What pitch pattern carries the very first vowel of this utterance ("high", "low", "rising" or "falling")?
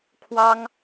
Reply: high